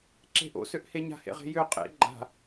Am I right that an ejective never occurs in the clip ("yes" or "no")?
no